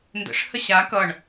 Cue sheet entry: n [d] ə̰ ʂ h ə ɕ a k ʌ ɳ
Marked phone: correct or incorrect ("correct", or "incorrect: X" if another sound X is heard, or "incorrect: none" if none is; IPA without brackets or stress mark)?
correct